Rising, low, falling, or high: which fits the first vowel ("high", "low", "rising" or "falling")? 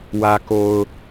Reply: low